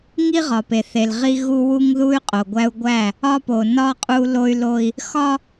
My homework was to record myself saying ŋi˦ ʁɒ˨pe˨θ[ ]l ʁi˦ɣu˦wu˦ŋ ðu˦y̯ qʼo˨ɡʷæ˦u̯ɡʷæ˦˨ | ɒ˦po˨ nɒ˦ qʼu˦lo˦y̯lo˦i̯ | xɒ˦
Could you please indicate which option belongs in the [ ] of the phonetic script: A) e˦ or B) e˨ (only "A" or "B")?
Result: B